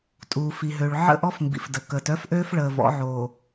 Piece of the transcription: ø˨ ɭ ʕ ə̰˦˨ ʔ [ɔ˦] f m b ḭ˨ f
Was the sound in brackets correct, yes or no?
yes